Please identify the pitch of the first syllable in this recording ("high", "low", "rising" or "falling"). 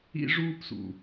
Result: high